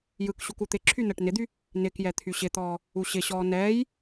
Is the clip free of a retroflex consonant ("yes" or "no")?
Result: no